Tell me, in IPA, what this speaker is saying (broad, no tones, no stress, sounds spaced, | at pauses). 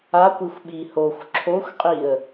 a kʷ i xʷ ɓ i h o xʷ ǁʰ o xʷ qʼ i ə̯